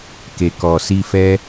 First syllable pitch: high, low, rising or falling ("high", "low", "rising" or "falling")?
low